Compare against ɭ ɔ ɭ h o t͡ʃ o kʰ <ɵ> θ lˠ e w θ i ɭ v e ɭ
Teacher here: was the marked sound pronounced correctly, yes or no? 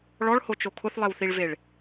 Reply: no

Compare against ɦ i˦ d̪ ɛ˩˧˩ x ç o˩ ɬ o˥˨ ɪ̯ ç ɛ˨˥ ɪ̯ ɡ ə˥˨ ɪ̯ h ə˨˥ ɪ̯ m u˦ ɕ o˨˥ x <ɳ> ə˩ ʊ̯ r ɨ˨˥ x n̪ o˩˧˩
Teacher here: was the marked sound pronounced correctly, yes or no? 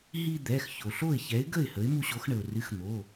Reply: yes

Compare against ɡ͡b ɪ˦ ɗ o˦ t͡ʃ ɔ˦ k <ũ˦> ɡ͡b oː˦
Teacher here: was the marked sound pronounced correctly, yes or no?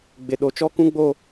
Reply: yes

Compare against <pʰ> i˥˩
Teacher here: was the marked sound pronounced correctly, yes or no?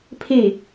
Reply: yes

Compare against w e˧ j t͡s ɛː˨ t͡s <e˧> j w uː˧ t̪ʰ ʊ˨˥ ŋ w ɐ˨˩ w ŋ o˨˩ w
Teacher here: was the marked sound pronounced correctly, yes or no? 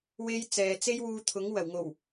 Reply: no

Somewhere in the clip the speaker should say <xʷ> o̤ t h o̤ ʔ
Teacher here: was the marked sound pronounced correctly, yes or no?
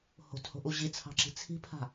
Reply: no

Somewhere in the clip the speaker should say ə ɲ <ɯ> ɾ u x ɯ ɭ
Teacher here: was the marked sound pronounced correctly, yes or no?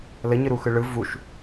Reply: yes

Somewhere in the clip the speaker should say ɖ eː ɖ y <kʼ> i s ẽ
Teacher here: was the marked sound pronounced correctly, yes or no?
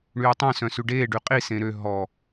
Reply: no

